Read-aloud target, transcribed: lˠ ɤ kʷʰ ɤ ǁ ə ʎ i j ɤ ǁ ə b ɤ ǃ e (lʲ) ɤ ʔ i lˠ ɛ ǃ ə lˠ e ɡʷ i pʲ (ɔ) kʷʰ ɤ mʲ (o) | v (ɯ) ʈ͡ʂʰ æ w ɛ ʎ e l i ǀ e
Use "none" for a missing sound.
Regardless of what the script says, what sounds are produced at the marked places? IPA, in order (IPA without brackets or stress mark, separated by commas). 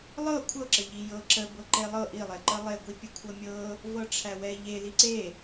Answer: lˠ, ə, ɤ, ɤ